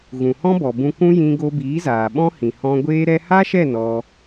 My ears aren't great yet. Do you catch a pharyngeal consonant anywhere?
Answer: no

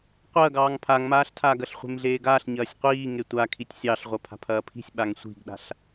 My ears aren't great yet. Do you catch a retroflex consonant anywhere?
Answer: no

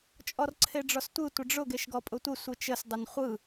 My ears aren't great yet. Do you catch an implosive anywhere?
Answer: no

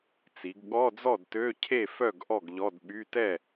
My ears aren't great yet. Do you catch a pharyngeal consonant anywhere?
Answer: no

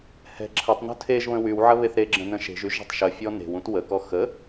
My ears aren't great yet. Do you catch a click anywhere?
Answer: yes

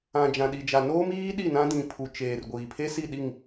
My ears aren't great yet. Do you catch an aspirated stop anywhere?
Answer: yes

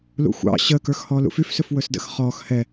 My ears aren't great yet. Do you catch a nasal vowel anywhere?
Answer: no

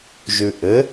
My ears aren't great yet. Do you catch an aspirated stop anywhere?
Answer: no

